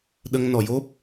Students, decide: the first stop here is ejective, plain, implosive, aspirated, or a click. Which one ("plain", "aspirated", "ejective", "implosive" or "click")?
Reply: implosive